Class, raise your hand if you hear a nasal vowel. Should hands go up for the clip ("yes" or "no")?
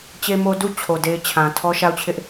yes